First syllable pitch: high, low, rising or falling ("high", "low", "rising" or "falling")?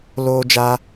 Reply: high